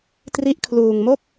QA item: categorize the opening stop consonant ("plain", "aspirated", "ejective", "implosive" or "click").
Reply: plain